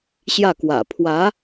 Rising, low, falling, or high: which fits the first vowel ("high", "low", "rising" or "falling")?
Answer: falling